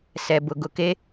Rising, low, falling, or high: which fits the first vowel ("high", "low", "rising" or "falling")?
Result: low